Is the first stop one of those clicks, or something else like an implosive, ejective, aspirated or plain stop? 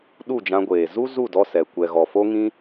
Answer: implosive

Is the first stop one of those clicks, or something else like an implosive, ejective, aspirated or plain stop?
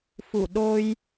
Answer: implosive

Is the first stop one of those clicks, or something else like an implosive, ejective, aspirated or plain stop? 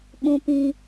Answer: implosive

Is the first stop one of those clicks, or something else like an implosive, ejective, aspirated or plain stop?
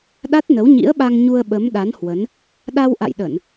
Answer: implosive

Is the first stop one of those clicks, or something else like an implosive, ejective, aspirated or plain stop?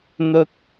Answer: plain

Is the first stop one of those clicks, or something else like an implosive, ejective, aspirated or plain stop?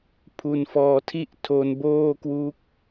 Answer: aspirated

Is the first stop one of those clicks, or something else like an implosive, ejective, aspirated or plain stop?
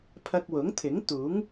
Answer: aspirated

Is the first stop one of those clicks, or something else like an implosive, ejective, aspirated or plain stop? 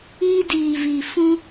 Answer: plain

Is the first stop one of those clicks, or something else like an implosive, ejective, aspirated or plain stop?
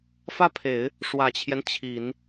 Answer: aspirated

